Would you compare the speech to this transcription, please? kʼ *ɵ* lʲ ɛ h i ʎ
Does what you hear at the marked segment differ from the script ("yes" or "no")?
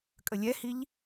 yes